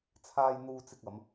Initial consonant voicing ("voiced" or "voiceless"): voiceless